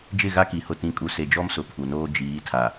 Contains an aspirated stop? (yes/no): yes